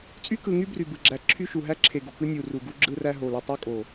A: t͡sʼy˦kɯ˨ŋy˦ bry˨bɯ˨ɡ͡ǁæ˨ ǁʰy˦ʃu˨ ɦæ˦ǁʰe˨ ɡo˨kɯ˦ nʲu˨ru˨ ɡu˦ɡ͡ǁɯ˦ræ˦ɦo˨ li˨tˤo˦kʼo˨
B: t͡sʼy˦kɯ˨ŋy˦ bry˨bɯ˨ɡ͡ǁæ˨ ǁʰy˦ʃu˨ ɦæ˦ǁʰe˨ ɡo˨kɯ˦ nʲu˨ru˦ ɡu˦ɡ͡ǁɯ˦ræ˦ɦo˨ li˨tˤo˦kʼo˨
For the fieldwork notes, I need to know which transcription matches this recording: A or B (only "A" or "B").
A